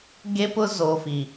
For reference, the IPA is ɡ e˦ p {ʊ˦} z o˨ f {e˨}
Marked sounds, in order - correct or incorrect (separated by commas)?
correct, incorrect